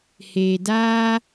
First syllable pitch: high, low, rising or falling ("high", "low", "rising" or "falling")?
low